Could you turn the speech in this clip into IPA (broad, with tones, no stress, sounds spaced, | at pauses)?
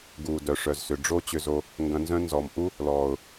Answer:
ɡ uː˨ d œ˨ ʂ œ˨ z s ʏ˨ ɖ͡ʐ o˦ t͡ɕ ʏ˧ z o˧ | ŋ ɡ ɐ̃˧ n z œ̃˦ n z ɔ˨ m ʔ u˦ | l ɔː˨ ʊ̯